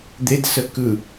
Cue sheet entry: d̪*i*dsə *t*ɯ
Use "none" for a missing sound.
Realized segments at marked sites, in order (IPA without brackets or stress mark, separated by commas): e, k